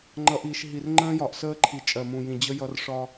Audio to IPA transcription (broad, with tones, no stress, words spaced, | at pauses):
ŋ͡ǃʌ˨ʔiː˨ʃ ɦi˨r ŋ͡ǃə̃ː˦jɒ˨ʔsəː˦ǃʰi˨ t͡ʃʼɜ˨mũ˨ jĩ˨d͡ʑə˦jʌ˦r ʂɒ˦